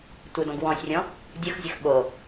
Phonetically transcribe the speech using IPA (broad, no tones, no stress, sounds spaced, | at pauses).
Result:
tʷ ɯ d ɔ̃ ɡ w ɔ̃ sʲ rʲ ɔ̃ | dʲ ɯ x zʲ ə x ɓ o